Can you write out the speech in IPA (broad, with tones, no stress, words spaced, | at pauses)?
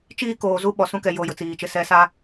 t͡ʃiː˦koː˨zu˦ ɓɔ˨sũ˦kɛ˨ jo˦˨jʊ˨t͡siː˨t͡ʃɪ˦ sɛ˦sa˦